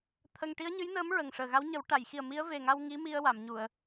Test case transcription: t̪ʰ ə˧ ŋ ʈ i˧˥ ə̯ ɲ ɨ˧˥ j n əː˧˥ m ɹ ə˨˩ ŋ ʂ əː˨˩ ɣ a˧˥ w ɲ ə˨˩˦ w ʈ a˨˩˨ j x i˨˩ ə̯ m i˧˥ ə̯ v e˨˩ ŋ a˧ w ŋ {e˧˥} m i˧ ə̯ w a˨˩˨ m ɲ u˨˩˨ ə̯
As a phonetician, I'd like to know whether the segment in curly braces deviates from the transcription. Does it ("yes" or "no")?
yes